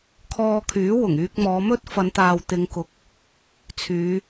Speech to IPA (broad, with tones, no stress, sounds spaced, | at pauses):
kʰ ɔː˧ kʰ yː˨˥ w ʊ˨˩ ŋ yː˧ k̚ m ɔː˨˧ m ɵ˥ t̚ f ɐ˨˧ n t̪ aː˨ w t̪ ɪ˨˧ ŋ k ʊ˨˥ k̚ | t͡sʰ yː˨˧